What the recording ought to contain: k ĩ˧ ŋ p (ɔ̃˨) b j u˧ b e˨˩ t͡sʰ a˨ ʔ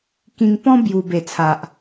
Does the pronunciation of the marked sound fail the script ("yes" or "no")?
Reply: yes